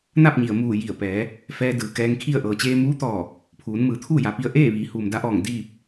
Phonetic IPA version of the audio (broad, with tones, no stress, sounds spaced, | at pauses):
n a˥˨ p̚ ɲ i˩ ə̯ m uː˧˩ j i˧˩ ə̯ p ɛː˩˧ | f ɛː˧ d ɯː˩ k ɛː˧ ŋ kʰ i˥˨ ə̯ ʔ ɤː˩ t͡ɕ eː˧ m uː˧˥ t̪ ɔː˧˩ | pʰ uː˩˧ n m ɯː˩˧ t̪ʰ uː˥˨ j a˩˧ p i˧ ə̯ ʔ eː˥˨ ʋ iː˩˧ h uː˩ m d a˧ ʔ ɔː˧˩ ŋ d iː˥˨ p̚